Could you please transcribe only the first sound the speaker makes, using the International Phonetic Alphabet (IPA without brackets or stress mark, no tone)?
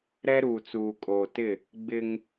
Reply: ɾ